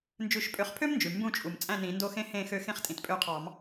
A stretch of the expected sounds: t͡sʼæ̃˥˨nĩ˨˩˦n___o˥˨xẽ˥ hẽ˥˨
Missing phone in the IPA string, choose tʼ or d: d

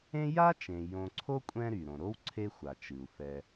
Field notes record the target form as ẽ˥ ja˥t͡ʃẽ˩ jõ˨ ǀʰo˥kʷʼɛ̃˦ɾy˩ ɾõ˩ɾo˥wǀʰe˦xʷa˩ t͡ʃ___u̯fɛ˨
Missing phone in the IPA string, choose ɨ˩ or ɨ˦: ɨ˩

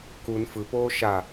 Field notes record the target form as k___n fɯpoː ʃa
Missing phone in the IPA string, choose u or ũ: u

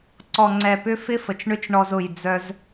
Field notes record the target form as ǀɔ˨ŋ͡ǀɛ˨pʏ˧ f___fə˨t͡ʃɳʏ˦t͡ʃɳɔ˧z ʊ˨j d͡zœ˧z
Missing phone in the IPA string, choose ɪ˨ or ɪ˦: ɪ˦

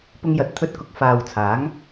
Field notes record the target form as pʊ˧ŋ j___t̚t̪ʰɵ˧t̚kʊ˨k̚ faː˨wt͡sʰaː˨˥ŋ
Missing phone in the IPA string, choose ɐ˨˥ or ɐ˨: ɐ˨˥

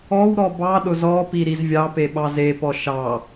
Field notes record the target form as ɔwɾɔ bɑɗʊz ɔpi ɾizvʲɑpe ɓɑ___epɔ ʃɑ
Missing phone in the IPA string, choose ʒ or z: z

